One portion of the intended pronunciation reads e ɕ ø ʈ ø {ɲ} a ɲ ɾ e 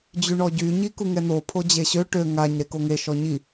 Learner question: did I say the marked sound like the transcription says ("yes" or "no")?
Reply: no